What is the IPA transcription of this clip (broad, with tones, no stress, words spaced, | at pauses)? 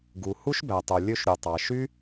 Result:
ɡu˨ hu˦ʃbæ˨tˤo˨ lʲø˧ʃɾʲo˨tˤɑ˨ ʃy˦